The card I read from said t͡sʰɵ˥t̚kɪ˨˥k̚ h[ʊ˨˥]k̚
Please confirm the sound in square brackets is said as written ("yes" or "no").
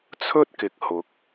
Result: yes